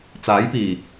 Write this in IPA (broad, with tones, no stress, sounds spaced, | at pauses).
t͡s aː˨˥ j p iː˨˩